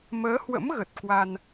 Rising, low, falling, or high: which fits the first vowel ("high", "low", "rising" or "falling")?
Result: rising